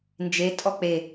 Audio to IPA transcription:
n d͡ʒ e tʼ ɔ k͡p e

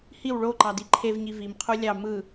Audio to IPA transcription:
h i w ɭ o ǃ ɑ d i ǃʰ e v ɲ i v i m qʰ u lʲ ɑ m ɯ

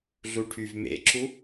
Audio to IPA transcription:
ɮ u ʈʰ y v m ḛ ǁ u

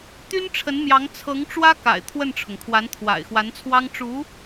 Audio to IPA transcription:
t̪ y˥ n ʈ͡ʂʰ ə˧˥ n m j ɑ˧˥ ŋ t͡sʰ ɤ˧˥ ŋ ʈ͡ʂ w ä˥ k a̰˨˩ ɪ̯ t̪ʰ w ə˥˩ n ʈ͡ʂʰ ʊ˩ ŋ kʰ w a˧˥ n t̪ʰ w a̰˨˩ ɪ̯ x w a˧˥ n t͡sʰ w ɑ˥ ŋ ʈ͡ʂ u˧˥

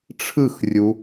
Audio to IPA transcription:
ʈ͡ʂʰ ɯ x rʲ u

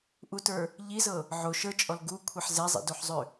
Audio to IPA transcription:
ʔ u t ə˞ | ʎ i z ɤ | ʕ o ʃ ə˞ t͡ʃʼ ɔ l ɡ u kʷʰ ɛ ħ z ɛ zˤ ḭ d o ħ zˤ ø

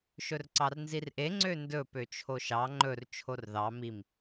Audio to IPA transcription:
ʃ ɵ r ǀ ɑ r n z i r ʔ e ŋ͡ǀ ø n d ɵ p ø t͡ʃʰ o ʃ ɑ ŋ͡ǃ ɵ r t͡ʃʰ o r ð ɑ m i m

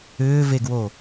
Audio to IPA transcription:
ʏː v e ɡ w o

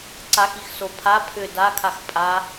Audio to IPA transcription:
ǀ a x i x s o pʰ a pʰ ʏ d a kʰ a x pʼ a

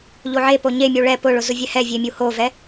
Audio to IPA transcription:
ʎ o ʕ e p o ɲ e mʲ u ɭ ɛ p ʊ ɭ ʊ z ʊ vʲ ɛ h ɛ vʲ e mʲ u h o v ɛ

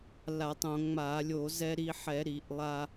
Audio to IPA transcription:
l a˧˩˧ tˤ õ˧˩˧ ŋ͡m a˧˩˧ lʲ o˧˩˧ z ɛ˧ ɾ i˧ ħ ɛ˧˩˧ ɾ i˧˩˧ ʔ lˠ a˧

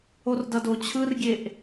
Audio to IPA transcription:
o r d ʌ d o t͡ɕʰ ɯ r ɡʲ e ʔ

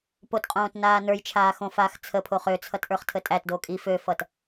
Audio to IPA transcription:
p o t qʼ õː t n aː n ə˞ j t͡ʃʰ aː x õ f aː x t͡sʰ ə pʰ o χ ø t͡sʰ ʌ t ʔ ə˞ χ tʰ ə tʼ æ t d o kʼ i f ø f ʌ t

